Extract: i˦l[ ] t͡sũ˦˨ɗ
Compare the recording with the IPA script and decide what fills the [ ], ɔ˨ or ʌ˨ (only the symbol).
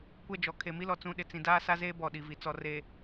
ɔ˨